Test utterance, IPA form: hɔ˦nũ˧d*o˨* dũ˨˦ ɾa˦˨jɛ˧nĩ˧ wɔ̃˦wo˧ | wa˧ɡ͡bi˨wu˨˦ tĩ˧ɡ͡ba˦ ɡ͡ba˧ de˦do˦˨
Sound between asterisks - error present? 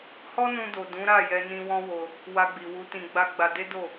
no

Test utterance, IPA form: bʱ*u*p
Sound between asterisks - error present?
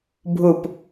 no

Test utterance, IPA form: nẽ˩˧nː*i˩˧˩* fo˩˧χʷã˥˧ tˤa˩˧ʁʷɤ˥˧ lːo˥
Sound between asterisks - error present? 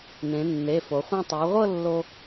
yes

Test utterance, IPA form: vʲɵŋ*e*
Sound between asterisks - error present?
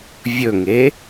no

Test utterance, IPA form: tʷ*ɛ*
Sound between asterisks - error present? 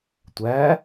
yes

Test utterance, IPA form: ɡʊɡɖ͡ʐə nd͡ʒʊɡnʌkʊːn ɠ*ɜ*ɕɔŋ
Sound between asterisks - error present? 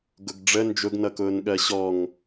no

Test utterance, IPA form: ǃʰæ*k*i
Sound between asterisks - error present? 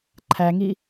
yes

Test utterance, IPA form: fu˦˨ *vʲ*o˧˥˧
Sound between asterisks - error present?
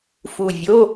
no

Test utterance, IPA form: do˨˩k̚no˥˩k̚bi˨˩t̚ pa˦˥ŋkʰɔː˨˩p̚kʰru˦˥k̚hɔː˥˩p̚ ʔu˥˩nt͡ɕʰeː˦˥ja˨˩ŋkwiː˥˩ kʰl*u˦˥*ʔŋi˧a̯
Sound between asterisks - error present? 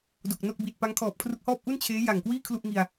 yes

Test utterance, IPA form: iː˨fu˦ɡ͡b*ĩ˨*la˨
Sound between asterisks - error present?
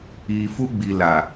yes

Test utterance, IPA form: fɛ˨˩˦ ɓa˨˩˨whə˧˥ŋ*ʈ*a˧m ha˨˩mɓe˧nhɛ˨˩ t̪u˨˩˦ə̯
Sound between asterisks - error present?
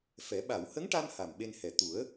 no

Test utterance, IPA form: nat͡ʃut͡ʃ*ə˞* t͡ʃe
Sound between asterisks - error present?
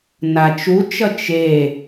yes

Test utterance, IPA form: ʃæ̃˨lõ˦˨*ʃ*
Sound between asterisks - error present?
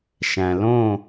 yes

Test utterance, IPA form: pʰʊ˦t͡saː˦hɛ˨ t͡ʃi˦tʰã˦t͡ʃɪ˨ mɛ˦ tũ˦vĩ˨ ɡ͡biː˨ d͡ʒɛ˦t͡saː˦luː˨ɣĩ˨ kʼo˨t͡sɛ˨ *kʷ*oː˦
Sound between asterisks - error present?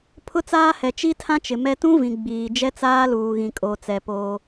yes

